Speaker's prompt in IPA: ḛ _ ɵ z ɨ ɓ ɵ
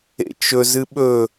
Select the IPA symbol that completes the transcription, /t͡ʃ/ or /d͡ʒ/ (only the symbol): t͡ʃ